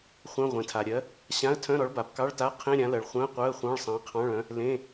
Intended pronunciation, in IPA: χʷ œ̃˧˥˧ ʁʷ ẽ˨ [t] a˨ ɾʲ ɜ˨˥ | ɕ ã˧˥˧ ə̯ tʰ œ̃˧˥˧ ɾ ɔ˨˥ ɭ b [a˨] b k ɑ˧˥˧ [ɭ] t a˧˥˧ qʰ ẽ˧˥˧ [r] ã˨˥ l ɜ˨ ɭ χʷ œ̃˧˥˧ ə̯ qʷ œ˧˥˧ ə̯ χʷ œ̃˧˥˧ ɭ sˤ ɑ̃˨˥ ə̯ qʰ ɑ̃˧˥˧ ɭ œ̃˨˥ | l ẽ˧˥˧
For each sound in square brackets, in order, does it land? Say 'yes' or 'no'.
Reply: no, yes, yes, no

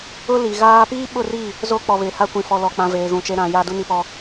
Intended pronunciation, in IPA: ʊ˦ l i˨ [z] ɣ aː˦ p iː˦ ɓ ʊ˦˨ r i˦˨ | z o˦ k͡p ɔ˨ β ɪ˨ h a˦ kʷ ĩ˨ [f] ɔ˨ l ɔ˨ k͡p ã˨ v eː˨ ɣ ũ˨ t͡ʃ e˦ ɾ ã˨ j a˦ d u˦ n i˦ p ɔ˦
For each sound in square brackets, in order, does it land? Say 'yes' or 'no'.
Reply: no, yes

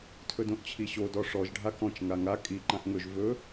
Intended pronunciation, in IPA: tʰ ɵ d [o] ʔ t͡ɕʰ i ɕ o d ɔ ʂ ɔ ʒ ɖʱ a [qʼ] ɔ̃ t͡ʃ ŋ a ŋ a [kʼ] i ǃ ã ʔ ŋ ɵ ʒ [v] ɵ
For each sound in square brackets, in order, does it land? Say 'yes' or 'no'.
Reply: no, no, yes, yes

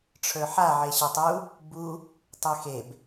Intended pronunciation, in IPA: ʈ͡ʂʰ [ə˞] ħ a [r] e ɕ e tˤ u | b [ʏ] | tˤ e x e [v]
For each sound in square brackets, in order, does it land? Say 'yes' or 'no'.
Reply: yes, no, no, no

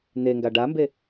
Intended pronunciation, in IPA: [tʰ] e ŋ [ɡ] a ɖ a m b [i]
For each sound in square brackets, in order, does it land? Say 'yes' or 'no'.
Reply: no, yes, no

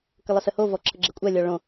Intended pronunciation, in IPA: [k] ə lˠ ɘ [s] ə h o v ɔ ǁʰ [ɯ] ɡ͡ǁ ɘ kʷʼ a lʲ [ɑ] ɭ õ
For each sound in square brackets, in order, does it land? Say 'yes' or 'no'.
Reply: yes, yes, no, no

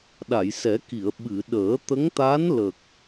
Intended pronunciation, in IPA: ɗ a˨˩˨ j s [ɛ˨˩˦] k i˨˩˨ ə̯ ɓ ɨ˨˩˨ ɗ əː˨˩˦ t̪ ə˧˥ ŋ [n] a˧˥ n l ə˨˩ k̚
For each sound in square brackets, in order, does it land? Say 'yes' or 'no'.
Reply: yes, no

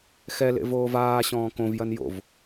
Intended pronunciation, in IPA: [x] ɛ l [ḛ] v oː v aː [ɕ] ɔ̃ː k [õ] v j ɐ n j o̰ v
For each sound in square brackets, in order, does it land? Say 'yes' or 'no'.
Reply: yes, yes, yes, yes

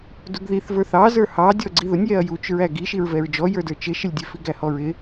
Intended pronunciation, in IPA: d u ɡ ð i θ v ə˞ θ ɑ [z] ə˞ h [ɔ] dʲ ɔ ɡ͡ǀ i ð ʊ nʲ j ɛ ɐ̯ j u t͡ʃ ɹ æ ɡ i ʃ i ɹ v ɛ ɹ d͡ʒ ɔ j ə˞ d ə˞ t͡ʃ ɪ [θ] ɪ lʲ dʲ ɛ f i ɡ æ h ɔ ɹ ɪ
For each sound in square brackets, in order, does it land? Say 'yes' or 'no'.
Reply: yes, no, no

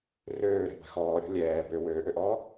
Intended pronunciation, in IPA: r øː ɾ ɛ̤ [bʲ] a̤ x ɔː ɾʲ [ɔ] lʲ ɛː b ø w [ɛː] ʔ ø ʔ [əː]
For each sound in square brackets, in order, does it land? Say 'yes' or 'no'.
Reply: no, no, no, no

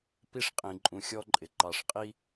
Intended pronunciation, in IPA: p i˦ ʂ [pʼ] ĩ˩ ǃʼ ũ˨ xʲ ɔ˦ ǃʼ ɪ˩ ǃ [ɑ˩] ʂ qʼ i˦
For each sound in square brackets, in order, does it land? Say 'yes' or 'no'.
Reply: no, yes

